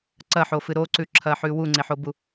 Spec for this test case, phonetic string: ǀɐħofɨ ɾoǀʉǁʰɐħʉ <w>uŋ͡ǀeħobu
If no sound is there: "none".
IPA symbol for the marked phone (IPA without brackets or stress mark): w